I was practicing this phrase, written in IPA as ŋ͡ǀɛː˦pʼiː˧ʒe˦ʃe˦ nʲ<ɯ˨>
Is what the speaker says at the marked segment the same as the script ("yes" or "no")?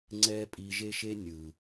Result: yes